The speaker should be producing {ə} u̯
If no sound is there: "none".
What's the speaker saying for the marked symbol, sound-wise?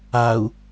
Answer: a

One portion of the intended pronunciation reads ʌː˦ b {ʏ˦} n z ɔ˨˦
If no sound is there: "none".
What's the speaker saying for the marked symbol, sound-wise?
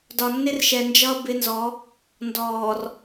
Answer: ɪ˦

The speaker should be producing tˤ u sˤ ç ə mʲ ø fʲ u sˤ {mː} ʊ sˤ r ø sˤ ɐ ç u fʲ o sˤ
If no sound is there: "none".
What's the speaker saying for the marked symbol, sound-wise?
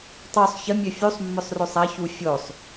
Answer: mː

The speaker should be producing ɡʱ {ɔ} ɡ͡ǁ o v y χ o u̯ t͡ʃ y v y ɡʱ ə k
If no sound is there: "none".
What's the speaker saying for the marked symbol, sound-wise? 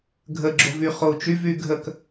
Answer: ə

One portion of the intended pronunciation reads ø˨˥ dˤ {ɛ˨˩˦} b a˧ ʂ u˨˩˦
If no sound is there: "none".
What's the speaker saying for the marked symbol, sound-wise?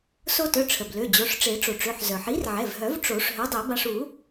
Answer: ɛ˨˩˦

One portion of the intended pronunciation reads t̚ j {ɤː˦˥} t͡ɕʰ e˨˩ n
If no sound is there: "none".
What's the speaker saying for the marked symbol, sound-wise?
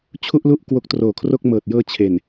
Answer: ɤː˧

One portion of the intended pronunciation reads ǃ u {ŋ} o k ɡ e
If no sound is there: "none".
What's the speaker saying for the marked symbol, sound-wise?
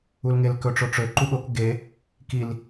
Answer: ɠ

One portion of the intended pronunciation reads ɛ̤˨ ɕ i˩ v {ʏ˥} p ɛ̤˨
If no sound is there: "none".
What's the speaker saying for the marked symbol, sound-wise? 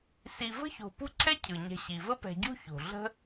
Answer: ə˥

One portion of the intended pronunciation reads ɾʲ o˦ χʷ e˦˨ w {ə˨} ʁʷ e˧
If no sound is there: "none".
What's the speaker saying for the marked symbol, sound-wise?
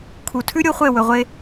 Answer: ɵ˨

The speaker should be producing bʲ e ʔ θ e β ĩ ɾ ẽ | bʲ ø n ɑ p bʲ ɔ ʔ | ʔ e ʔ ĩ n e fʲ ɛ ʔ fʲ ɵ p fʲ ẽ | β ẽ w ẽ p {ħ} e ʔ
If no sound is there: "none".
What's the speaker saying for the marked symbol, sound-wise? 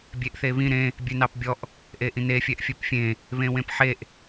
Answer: ħ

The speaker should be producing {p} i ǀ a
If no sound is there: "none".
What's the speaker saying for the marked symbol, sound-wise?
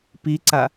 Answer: p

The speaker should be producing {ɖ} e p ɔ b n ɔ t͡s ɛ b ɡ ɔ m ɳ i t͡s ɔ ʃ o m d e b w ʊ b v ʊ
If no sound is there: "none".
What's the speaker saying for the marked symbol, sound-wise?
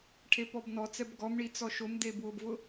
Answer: ʈʰ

